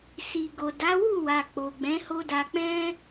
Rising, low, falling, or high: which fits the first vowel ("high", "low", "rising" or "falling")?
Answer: low